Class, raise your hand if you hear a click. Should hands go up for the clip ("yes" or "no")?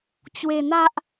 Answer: no